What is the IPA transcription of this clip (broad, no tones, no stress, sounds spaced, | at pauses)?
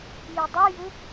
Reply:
j i dˤ ʉ j u